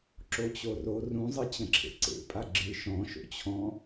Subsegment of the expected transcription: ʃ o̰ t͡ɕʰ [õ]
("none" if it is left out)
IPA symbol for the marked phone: ɔ̃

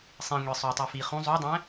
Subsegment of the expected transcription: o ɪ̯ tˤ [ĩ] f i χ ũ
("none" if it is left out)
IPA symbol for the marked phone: i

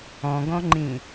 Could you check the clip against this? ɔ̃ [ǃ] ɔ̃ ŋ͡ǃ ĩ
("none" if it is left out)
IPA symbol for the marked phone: ɡ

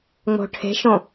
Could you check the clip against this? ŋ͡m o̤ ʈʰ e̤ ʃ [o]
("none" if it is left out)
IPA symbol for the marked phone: õ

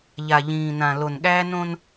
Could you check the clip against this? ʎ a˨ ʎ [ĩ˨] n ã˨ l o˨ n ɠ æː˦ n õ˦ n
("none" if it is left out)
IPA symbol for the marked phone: ĩː˨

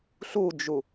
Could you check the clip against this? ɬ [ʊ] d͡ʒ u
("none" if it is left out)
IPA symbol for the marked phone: u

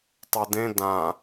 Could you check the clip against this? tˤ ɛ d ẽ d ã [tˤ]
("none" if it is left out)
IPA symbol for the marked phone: none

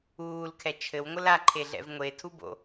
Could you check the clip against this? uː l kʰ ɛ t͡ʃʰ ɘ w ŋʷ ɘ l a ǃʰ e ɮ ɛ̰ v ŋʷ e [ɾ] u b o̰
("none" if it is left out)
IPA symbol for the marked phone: tʰ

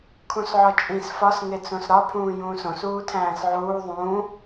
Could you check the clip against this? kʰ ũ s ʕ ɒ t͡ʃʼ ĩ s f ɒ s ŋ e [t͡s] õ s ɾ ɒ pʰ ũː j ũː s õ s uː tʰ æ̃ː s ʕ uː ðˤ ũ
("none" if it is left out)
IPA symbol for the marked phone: t͡s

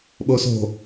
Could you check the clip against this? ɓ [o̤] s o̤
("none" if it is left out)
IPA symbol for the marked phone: o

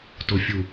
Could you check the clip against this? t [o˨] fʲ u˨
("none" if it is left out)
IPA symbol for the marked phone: o˨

